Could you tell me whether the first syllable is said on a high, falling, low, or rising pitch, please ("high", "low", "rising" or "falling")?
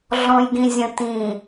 low